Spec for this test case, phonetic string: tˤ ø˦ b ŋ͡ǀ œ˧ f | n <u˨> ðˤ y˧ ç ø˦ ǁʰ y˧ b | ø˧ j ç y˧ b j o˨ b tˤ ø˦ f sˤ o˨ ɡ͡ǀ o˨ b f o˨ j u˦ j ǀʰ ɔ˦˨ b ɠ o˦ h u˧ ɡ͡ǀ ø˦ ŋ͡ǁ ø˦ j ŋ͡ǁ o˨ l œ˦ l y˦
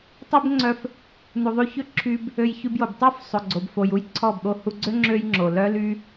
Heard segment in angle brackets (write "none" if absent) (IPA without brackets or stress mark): u˨